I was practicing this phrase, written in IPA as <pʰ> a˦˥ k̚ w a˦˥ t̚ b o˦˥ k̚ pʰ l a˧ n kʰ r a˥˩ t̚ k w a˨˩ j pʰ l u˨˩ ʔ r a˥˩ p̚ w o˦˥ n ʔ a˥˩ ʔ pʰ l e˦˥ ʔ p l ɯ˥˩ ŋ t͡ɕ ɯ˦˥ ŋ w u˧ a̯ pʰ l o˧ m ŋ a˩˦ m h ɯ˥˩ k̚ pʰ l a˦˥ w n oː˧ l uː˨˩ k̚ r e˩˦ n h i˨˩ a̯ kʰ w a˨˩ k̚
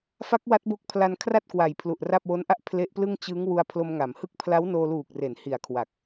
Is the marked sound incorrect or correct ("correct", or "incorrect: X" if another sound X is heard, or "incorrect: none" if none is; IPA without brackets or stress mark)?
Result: incorrect: f